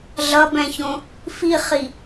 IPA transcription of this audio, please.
ɮ ʌ b ɛ̃ ç õ | f i χ i

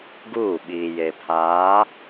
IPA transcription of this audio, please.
ɡ uː˦˨ ɓ iː˨ j e˨ pʰ aː˨˦

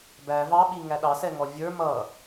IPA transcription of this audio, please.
b æ v ɑ ɓ i ŋ æ ɗ ɑ s ɛ ŋ ɔ vʲ ə˞ m ʌ

